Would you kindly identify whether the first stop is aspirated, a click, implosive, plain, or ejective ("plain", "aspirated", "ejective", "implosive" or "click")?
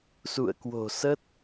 plain